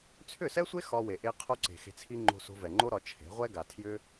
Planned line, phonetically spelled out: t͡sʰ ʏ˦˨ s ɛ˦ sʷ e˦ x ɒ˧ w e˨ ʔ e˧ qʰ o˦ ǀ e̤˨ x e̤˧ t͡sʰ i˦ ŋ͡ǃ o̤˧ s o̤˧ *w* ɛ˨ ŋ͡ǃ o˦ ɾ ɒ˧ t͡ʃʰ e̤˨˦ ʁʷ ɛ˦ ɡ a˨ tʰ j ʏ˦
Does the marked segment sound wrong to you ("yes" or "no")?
yes